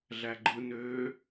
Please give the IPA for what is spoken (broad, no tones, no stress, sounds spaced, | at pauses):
ɮ æ ɡ͡ǃ ɯ n øː